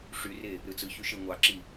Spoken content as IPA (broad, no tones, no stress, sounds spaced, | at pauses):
ʂ y r e | ɾ ɯ t͡s ɯ ç y ʃ e ŋʷ ɑ ǁ i